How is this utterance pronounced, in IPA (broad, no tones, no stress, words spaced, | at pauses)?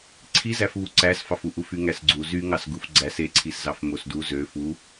ǀʰizæfβu ǀæsfɑfu ʔufyŋæsɡ͡ǀu zyŋɑs ɡufɡ͡ǀæs eǀʰiszɑf mosdu zø fu